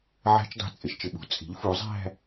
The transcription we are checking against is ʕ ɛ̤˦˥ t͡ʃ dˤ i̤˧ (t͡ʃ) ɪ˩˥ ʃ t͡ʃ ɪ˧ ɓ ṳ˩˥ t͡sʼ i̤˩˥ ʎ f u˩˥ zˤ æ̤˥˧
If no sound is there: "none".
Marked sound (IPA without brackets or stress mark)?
t͡sʼ